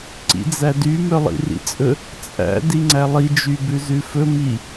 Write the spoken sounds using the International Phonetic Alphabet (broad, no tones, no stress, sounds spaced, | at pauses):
ǀ ḭ d͡z æ d y m œ lˠ ḭ r ḭ t͡sʼ ɵ | t͡sʼ æ̰ d i ŋ͡ǀ æ lˠ i d͡ʒ y b ʉ z ʉ f ɵ m i